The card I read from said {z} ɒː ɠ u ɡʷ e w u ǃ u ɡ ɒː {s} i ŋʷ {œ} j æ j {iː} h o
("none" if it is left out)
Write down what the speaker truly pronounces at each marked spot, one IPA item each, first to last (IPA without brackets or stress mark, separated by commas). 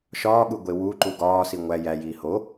ʃ, s, æ, iː